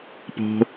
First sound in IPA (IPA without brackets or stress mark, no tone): p